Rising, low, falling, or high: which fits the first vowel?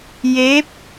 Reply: rising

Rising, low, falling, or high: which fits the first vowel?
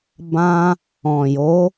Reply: high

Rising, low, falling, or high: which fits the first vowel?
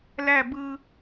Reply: falling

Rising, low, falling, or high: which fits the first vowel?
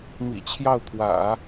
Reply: low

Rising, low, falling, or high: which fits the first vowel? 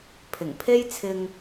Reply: low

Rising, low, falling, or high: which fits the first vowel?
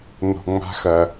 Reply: low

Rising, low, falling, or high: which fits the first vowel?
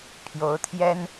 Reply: rising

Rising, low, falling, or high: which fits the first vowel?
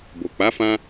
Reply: low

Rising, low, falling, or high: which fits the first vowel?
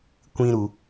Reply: high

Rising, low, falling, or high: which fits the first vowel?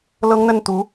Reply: high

